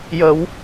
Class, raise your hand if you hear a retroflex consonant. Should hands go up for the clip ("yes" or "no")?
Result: no